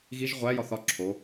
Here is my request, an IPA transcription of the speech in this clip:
ɣiʒ ʁʷæ jɒθɒ ǁʰo

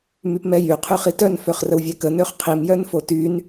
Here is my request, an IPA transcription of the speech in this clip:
mypmɛjy qʰyχitœn føχrəwvʲɛkə nøχqʰim jœnfotyn

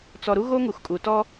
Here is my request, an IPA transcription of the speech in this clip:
t͡sɔ˨ɾu˦ ɣo˦ŋu˨xkʼu˨ tɔ˦

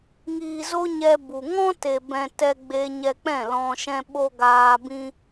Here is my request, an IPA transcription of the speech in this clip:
ŋiː˨zo˧ ɲɛ˧bu˨ ŋɔ̃˦te˨bɛ̃˨ tɛ˧ɡ͡be˧ ɲɛ˧k͡pɛ̃˦˨lɔ̃˧ʃɛ̃˦ ɓo˦ ɡaː˧bĩ˦

